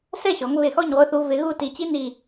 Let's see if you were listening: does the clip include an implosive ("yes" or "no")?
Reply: no